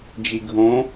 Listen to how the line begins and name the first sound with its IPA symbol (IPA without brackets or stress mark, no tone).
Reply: d͡ʒ